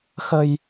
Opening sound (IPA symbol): x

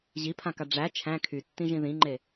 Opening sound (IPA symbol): ʑ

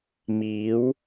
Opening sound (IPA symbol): m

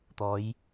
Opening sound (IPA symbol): t̪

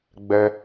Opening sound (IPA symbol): ɡ͡b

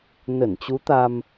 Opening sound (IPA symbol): n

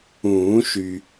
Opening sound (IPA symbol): ũː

